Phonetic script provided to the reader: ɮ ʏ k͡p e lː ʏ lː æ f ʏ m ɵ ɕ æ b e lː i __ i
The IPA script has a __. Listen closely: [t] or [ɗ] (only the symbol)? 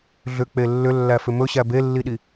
ɗ